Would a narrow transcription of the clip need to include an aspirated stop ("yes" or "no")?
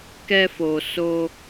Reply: no